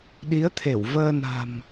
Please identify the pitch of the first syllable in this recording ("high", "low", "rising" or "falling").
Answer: rising